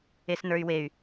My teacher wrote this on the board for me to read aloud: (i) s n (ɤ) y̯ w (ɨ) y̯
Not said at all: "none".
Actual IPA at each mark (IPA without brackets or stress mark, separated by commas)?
e, ə˞, e